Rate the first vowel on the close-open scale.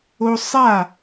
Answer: mid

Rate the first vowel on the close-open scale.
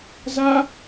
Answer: open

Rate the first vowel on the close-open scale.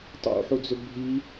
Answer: close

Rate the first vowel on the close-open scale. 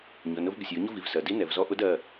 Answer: close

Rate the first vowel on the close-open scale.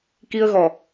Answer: close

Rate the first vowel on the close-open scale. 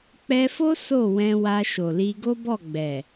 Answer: mid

